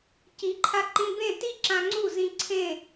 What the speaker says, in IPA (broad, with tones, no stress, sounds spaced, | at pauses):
c i˨˦ ǃʰ a˧ ǃ ĩ˧ b ẽ˦˨ t i˦ ǁ ã˧ ŋ͡ǀ u˦˨ z ĩ˧ ǀʰ ẽ˦˨